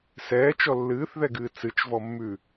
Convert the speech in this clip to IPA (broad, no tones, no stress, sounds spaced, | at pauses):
s ɛː t͡ʃ ɔ lː ɨː θ ð ɛ ɡ ɨː t͡s ɨ t͡ʃ v ɔ mː ʉ